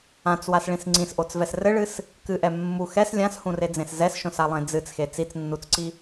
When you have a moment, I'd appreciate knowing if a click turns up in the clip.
yes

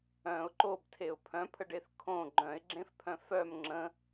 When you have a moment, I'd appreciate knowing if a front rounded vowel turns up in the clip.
yes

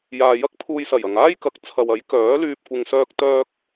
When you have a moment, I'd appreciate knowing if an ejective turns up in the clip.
no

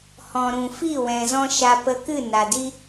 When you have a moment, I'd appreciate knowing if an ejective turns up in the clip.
no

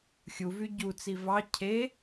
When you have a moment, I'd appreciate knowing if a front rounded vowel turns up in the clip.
yes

